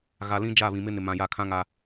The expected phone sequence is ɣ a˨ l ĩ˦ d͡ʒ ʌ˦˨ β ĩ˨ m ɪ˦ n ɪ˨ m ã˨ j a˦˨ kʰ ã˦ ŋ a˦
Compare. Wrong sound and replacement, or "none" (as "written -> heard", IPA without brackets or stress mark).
ʌ˦˨ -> a˦˨